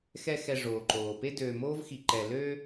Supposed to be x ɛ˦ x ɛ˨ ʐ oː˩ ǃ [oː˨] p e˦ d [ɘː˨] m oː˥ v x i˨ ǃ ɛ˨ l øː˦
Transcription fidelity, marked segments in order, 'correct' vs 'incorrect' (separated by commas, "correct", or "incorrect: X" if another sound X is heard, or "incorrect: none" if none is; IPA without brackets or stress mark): incorrect: oː˩, incorrect: øː˨